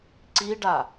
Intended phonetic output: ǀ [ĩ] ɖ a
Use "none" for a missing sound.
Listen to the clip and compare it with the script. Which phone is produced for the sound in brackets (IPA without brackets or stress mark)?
i